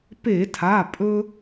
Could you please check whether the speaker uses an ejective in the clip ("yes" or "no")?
yes